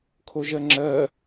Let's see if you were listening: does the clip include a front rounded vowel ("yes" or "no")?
no